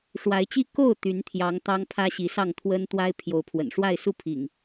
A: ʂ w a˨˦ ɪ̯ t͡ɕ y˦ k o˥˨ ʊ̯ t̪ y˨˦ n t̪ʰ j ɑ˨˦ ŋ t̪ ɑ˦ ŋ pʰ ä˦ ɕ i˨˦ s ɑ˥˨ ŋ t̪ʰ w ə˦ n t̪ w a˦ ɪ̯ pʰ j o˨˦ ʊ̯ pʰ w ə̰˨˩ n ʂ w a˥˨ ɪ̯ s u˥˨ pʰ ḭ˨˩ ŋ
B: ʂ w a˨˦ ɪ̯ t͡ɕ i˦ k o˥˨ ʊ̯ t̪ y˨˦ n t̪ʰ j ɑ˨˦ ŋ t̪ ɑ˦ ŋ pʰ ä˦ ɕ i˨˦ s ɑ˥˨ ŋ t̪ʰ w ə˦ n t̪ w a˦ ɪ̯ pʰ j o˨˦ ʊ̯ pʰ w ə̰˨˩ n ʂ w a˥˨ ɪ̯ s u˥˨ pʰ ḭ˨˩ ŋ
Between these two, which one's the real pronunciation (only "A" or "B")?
B